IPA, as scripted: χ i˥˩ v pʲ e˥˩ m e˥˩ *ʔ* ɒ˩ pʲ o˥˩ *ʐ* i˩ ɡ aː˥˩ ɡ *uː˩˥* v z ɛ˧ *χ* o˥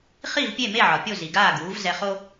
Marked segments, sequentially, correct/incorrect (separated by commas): incorrect, incorrect, correct, correct